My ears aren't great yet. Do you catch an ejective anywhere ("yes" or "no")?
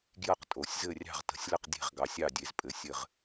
yes